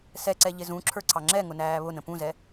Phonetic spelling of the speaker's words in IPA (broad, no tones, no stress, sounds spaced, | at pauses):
s ɛ ǀ ɛ ʎ ɪ z ũ ǁʰ ə˞ ǀʰ ɑ ŋ͡ǁ ɛ ŋ ʊ n æː β ʊ n ə̃ p ũ z ɛ